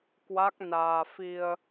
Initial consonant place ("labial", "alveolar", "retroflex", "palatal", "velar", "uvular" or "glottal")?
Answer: velar